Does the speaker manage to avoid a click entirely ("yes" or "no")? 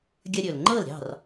no